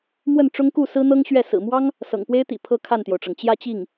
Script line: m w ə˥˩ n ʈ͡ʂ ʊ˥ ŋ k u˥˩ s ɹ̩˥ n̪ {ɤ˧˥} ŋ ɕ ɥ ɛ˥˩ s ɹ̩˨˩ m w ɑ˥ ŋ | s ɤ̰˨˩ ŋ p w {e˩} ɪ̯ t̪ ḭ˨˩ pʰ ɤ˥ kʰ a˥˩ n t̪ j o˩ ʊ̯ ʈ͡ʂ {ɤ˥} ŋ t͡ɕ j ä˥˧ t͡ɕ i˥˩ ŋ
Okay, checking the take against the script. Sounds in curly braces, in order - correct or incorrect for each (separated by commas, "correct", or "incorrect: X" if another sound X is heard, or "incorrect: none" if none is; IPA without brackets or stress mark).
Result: incorrect: ɤ˥, incorrect: e˥, incorrect: ɤ˩